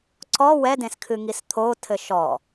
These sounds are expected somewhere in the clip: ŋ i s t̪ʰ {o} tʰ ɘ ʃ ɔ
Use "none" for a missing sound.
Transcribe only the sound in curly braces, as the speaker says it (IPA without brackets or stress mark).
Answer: o